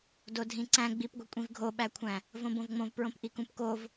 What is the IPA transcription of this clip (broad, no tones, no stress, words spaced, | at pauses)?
dodʱĩǀæ̃ ɡ͡bipɡʷi kʷʼĩvɡʱoɓækʷʰæ̃ | võbõvŋ͡mõv pɹõpʔikũpkov